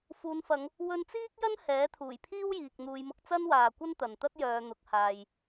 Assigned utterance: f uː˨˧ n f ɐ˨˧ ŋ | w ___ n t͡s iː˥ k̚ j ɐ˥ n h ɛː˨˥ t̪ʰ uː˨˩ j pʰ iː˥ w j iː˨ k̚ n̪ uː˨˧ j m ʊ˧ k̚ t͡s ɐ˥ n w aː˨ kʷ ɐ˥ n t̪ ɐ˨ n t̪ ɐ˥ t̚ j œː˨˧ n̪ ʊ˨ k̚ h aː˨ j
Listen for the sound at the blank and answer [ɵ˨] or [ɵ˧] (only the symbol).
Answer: ɵ˧